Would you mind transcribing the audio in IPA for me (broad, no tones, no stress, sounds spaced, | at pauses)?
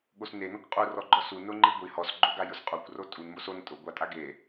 ɠ o s n e n ɔ kʷ qʼ u r ɔ ɡ͡ǃ ɔ s u n ʊ ŋ͡ǃ i ɡʷ i h ɔ s ɡ͡ǃ o ɡ a j ʊ s qʼ o kʷ r o tʼ u n m o s o n tʼ ʊ ɡʷ a tʼ a ɡ e